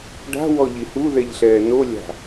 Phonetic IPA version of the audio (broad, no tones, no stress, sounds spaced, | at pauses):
ɖ a̤ w ɔ ʎ i h u ð ɛ ʎ ɬ ɛː n o lʲ a̤